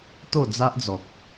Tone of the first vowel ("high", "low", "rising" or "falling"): falling